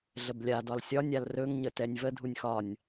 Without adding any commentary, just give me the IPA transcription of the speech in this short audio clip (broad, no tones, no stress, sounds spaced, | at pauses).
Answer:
ɮ ə b lʲ a d ɒ l sʲ ɒ nʲ a l r ɵ ŋ ɲ ə t ɛ nʲ v ə dʱ u nʲ x ɒ nʲ